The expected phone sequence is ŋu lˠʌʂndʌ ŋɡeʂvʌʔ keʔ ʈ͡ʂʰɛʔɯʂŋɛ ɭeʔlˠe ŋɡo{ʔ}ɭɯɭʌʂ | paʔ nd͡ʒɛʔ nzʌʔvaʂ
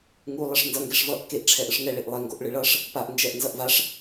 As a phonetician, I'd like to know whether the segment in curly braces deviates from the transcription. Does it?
no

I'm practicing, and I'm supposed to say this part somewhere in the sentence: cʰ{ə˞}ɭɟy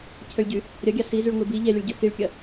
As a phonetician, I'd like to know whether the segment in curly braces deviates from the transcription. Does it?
yes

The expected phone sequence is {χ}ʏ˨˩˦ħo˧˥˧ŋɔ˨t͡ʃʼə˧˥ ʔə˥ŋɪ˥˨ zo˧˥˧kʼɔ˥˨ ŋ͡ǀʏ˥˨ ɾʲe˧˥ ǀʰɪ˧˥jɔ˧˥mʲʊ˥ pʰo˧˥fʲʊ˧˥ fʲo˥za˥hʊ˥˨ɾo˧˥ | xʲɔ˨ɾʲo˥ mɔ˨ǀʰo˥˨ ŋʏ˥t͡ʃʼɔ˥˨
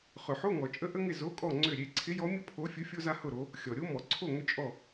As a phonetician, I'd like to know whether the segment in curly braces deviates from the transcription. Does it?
no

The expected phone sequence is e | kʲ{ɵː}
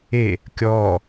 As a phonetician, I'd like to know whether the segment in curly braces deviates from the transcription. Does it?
yes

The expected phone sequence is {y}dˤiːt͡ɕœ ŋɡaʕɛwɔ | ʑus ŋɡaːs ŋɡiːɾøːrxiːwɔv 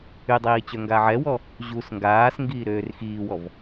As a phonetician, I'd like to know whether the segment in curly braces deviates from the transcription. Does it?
no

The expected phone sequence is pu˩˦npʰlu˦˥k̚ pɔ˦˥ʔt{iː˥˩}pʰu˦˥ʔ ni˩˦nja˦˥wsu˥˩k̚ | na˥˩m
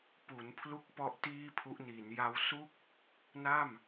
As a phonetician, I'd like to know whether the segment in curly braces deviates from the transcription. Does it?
no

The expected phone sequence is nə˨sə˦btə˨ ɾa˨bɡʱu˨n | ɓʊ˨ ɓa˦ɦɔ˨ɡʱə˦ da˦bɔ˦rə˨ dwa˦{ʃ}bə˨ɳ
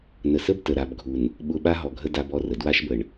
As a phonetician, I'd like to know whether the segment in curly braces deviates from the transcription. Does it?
no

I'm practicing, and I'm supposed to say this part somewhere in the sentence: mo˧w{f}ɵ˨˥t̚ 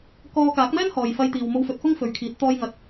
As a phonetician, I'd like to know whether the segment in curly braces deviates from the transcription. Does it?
no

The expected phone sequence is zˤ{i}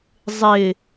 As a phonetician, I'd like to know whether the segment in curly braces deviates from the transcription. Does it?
yes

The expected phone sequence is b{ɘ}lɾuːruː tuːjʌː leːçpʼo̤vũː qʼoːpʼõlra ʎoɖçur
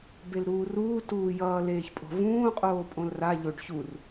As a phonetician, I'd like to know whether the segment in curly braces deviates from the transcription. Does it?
yes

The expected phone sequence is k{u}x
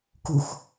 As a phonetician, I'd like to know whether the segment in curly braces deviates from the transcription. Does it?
no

